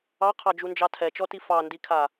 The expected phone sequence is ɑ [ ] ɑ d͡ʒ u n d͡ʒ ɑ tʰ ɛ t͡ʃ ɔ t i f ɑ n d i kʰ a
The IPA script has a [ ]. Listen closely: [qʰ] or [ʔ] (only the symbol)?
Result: qʰ